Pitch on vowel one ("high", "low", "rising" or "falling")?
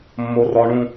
high